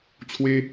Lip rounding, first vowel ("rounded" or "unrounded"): unrounded